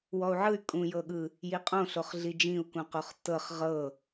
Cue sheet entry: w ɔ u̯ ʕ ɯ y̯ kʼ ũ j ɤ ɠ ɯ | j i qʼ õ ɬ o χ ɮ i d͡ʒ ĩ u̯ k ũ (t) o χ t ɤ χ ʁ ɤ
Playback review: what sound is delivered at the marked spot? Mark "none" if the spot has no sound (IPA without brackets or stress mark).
q